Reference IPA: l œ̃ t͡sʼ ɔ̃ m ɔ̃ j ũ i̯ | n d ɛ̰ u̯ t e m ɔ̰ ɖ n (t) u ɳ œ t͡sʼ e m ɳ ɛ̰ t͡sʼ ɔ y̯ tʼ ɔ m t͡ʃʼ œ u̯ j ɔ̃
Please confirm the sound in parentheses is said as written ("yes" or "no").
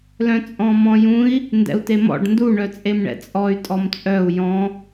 no